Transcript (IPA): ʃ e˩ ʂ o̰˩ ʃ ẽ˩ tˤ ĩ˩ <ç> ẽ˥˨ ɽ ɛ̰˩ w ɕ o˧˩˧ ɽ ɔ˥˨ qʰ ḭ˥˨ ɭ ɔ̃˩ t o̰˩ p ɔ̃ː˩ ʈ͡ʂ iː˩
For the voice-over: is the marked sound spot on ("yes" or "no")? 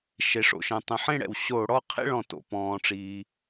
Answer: no